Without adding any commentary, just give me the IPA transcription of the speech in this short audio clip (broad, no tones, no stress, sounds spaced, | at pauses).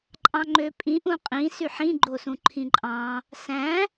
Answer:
ǃʼ ɑ̃ ŋ͡ǃ ø pʼ ĩ ʔ ũ qʼ ĩ s y ħ ĩ ɡ͡ǃ o s ũ ǃʰ ĩ ǃʼ ɑ̃ | s æ̃